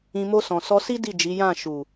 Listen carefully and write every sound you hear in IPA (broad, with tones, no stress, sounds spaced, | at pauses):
ĩ˧ m o˧ s ɔ̃˨ s ɔ˧ s i˦ d i˦˨ d͡ʒ i˨˦ j ã˦˨ ʃ u˨